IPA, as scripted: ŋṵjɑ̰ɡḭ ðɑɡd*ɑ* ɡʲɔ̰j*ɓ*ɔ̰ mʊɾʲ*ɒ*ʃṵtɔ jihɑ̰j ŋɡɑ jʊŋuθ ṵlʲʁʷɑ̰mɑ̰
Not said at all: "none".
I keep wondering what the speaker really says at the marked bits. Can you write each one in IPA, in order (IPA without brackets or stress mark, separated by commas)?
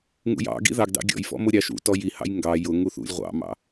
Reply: ɑ̰, f, ɑ